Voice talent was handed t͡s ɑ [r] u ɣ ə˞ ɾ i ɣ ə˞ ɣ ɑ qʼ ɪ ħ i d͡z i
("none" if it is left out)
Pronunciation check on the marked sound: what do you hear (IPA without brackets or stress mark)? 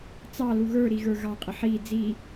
l